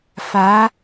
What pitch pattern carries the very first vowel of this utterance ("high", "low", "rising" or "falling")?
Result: rising